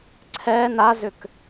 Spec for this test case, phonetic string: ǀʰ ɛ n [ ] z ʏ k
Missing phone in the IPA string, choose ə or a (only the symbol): a